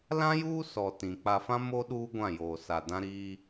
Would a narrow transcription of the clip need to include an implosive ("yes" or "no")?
yes